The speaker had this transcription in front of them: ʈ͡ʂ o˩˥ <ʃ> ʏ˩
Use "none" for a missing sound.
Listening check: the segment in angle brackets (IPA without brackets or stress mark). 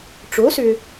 s